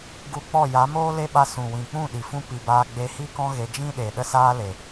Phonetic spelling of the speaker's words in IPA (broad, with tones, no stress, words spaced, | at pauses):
ɡu˧k͡pɔ˦˨ ja˨˦moː˦le˦ɓa˧ sũ˨wĩ˨k͡pũ˦˨ ɗi˨fũ˦ pi˨baː˧ ɡ͡be˧hi˦kɔ̃˦ ɣe˧ d͡ʒĩ˦ɗe˨ ɗə˦saː˦le˨